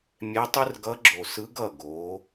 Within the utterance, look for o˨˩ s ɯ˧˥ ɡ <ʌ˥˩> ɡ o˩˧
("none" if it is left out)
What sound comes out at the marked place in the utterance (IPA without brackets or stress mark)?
ʌ˥˩